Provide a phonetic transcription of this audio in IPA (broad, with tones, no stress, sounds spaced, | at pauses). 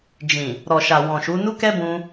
d͡ʒ ĩ˨ | ɾ ɔ˨ ʃ a˨ w ɔ̃˨ ʃ u˨˦ n u˦ k ɛ˦ b ũ˧